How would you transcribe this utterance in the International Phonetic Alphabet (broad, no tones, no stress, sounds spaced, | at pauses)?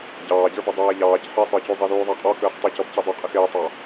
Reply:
ɟ ɑː ɟ ə˞ b ə dˤ æː ʎ ɑː c ħ i sˤ ə˞ c u zˤ i ð uː ðˤ æ qʼ ɔ k əː χ tˤ ə c ɔ b c i dˤ ʊ qʼ ɪ x ɪː tˤ ɑ